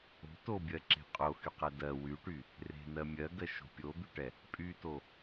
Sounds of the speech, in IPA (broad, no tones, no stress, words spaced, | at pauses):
o̤ tobʲɜǁe̤ qʼoxyqɛ dɜ wyʈy | re̤nɜ mʲɜɡɜʃo̤ pʲod̪yʈɛ | pʼyto